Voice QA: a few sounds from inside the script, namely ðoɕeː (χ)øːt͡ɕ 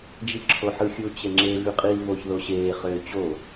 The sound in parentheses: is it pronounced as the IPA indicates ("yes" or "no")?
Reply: yes